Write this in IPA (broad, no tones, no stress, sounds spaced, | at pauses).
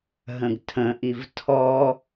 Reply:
ɦ ə̃ ɡ tʰ ə̃ ʔ i v tʰ ɔ